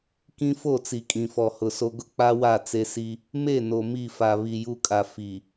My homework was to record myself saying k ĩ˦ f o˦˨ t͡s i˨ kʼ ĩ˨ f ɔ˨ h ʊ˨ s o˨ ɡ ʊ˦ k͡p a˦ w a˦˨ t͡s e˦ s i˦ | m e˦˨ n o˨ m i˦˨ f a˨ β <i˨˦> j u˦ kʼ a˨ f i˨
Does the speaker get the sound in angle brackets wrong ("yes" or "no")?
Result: yes